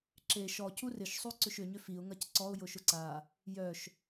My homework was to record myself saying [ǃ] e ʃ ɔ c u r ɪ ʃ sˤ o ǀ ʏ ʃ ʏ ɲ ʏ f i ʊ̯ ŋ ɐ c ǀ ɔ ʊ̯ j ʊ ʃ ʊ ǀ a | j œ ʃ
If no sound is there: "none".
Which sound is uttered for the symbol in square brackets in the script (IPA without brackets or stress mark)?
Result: ǁ